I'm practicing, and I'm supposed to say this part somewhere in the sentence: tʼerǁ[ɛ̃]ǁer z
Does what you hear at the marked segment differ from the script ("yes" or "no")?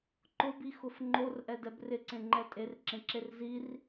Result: yes